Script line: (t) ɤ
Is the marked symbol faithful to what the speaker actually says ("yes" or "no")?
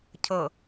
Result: no